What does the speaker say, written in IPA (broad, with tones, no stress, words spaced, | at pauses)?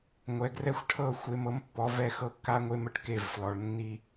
ŋʷɛ˨ɡrɛ˦xʷʈʰɤ˦˨ xʷe˦mɤ˦mpːɔ˨˦vɛ˦ xɤ˦kːa˦ŋʷe˦m ə˦ʈke˦˨vflɔ˨ɭ nːi˦